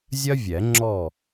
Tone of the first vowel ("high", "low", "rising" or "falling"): high